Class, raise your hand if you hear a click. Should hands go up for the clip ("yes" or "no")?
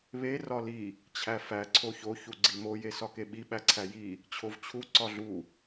yes